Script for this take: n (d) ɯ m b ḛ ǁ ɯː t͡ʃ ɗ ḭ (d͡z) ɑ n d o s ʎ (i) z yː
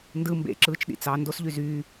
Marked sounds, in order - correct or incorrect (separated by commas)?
correct, incorrect, incorrect